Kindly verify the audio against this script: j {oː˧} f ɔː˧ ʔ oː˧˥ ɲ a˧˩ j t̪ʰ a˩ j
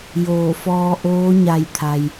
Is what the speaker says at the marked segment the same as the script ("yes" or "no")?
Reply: no